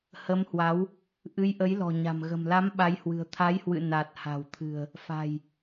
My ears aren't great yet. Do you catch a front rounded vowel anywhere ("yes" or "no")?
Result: no